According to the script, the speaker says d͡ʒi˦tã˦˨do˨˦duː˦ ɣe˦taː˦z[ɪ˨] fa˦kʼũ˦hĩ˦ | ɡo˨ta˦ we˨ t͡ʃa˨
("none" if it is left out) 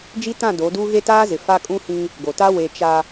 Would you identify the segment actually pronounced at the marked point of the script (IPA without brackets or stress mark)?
ɪ˨